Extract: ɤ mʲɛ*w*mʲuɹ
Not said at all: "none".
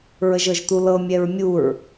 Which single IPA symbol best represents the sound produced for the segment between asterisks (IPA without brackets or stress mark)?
ɹ